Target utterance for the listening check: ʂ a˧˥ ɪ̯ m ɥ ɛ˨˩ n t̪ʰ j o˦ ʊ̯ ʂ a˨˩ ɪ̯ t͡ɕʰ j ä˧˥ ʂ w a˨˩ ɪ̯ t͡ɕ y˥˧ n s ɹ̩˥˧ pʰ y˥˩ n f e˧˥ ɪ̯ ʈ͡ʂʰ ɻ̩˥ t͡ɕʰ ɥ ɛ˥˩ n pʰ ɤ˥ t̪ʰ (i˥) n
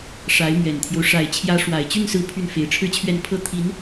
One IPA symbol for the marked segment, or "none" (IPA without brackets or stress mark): i˧˥